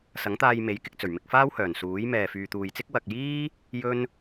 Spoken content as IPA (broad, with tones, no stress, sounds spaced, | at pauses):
s ɐ˨˥ ŋ t̪ aː˧ j m e˨˥ j k ɪ˧ k̚ t͡s ɵ˨˩ ɥ m ɪ˧ k̚ f aː˥ w h œː˨˩ n s uː˨˥ j m ɛː˨ f yː˨ t̪ uː˨ j t͡s ɪ˥ k̚ w ɐ˨ k̚ j iː˥ | j ɵ˥ n